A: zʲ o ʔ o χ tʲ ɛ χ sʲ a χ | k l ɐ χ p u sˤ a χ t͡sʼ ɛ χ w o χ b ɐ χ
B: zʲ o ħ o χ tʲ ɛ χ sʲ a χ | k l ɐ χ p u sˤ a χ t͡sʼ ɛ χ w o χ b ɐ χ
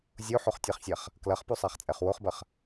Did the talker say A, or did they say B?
B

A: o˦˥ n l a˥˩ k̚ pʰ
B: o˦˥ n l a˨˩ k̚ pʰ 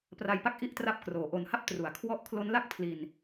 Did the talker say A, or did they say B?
A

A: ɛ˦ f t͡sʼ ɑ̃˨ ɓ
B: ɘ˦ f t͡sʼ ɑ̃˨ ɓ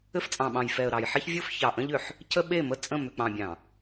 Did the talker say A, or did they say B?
B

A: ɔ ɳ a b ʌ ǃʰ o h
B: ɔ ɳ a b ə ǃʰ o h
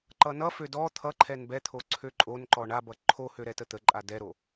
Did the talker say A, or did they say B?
A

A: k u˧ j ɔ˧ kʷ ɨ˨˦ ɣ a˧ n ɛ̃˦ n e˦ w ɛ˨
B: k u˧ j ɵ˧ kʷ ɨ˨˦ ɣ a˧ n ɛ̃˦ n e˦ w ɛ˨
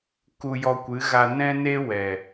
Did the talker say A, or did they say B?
A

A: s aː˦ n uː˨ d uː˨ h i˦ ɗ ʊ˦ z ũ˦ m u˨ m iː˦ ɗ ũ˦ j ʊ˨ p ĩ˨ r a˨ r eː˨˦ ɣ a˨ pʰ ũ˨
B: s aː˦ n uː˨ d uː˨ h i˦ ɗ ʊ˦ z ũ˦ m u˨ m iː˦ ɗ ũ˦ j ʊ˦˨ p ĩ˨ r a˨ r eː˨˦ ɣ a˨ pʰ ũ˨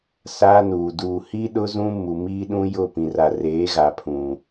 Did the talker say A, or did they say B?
B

